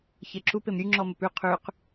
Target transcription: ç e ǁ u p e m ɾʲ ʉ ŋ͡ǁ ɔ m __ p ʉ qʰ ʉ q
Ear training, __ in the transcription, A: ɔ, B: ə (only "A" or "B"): B